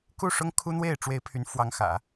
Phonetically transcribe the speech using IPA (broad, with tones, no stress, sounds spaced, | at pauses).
k u˥˩ ʂ ʊ˥ ŋ kʰ u˥ n̪ w e˥˩ ɪ̯ ʈ͡ʂ w e˧˥ ɪ̯ pʰ y˧˥ n f w ɑ˧˥ ŋ x ä̰˨˩˦